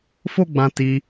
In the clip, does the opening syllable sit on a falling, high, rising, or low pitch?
high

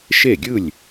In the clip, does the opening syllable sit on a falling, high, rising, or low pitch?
falling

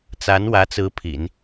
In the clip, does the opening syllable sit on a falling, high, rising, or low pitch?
rising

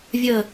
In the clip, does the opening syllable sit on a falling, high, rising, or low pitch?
falling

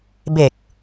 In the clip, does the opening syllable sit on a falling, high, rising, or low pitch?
low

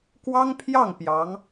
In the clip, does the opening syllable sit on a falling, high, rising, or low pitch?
high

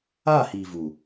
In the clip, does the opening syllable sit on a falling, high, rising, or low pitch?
falling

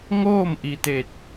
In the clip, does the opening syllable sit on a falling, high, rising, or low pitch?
falling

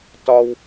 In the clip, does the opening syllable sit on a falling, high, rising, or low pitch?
high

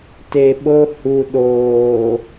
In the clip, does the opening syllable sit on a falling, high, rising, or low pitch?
low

